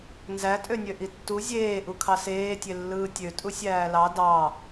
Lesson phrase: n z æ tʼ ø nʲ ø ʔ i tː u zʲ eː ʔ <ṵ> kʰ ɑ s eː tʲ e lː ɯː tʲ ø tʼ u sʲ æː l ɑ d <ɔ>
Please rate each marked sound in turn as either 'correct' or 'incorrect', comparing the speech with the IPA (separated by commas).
incorrect, incorrect